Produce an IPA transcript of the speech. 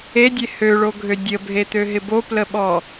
e dʲ e h ø ɭ o ɡʱ ø dʲ ə bʱ e t̪ ø ɦ ɪ b o p l ə ɓ ɔ

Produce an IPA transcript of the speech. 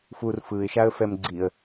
f u r f ɯ ɪ̯ ʃ a ə̯ f ɛ m ɡ͡ǀ i ə̯

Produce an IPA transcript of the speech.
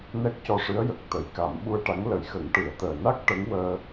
n ɛ˦˥ k̚ c ɔ˧ ʂ ɨ˧˥ ə̯ j ə˨˩ k̚ t̪ ə˨˩˦ j k a˨˩˦ m ɓ u˧ ə̯ ʈ a˧˥ ŋ l ə˨˩˦ j x ə˨˩˦ ŋ ʈ ɨ˨˩˦ ə̯ t̪ əː˨˩ n a˦˥ k̚ ʈ ə˧˥ ŋ w əː˧

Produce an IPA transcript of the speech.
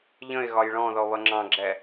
ʎ ə̃ ɪ̯ ɣ ɒ j ɭ ɔ̃ ð ɔ β ʌ ŋ͡ǁ ɑ̃ ɡ͡ǁ ɛ

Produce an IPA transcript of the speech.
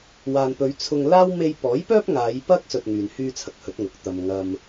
w aː˨ n p ɵ˨˧ ɥ t͡sʰ ʊ˧ ŋ l aː˥ w m e˧ j p ɔː˨˥ j p œː˥ p̚ ŋ aː˨˧ j p ɐ˥ k̚ s ɵ˧ t̚ ŋ yː˨ n h yː˥ t͡sʰ ɐ˨ k̚ h ɵ˨˥ t̚ ŋ ʊ˨˥ k̚ t̪ ɐ˨ m ŋ ɐ˧ m

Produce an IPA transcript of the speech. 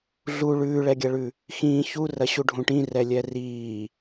ɮ u ɭ ʉː ɭ ɛ ɡʲ ɐ ɭ ʉ | x ĩ ç u r ɐ ɕ u ɖʱ ũ ʈ ĩ r ɛ lʲ ɛ r iː

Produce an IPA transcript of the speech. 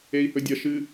e i̯ h ɵ dʲ ɐ ʃ ɨ

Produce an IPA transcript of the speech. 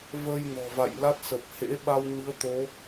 v ə˧ j n ɔ̤˨˩ v a̰˧˨ j l a˦˥ t̚ s ə˨˩ p̚ h ḛ˧˥ ɓ a˧ w ɲ ɨ˨˦ ə̯ t̪ o˨˦

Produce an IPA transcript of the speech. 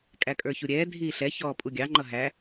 kʼ æ kʼ ə˞ ç u ɾʲ ɛː dʱ iː ɬ ɛ ç ɔː pʼ u ɡʲ ɑ ŋ͡ǃ ʌ ɦ æ

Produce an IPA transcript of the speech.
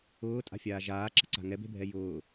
ʊː tʼ a̤ fʲ aː ʒ aː ǁ ə̤ ǀ a̤ ŋ ɛ b e̤ bʱ ɛ j ʊː

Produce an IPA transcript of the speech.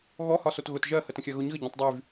ɣ ɔ h ɒ s o t ɣ ʊ t ʒ ɜ h ə t ə̃ xʲ ɜ ɣ ʊ ɲ ɣ ə ɟ õ tˤ dˤ y v

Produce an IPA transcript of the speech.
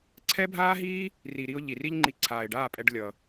ǀʰ ɛ˦ bʱ aː˦ ɦ iː˦ | r i˨ ɾ i˧ ʊ̯ ʎ i˨ r i˦ ʎ ŋ͡ǃ i˧ ǀʰ aː˨ ɪ̯ ɖ aː˦˨ pʼ ɛ˧ ɖ lʲ ʌ˨

